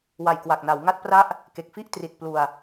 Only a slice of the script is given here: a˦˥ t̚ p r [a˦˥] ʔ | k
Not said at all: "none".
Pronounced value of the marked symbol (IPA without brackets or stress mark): a˦˥